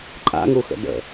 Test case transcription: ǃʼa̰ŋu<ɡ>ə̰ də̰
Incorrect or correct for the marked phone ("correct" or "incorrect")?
incorrect